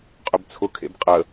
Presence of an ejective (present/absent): present